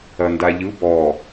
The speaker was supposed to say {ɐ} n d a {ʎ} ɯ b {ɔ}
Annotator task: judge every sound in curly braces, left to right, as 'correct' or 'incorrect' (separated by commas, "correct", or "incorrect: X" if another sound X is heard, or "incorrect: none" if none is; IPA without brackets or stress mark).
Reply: correct, correct, correct